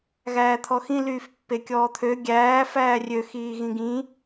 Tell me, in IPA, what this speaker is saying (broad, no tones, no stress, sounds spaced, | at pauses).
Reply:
ɣ æː t̪ʰ ɔ x ĩ l yː f pː e kʲ ɔː t̪ʰ ø ɡʲ æː f æː rʲ ø x iː ɣ ĩ ɡ ĩ